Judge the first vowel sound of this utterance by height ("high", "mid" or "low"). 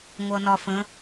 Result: mid